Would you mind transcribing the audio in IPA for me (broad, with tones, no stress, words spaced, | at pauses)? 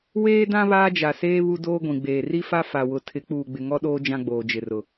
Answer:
weː˦dã˦ βaː˦d͡ʒa˨seː˦ βu˦doː˦ɡʷĩ˨ɡ͡beː˨ ri˦fa˦ fa˨wʊ˨ tʰɪ˨˦k͡puː˨ɡ͡bɪ˨ ŋɔ˦ɗoː˦ d͡ʒã˦ɡ͡boː˨d͡ʒɪ˨rʊ˨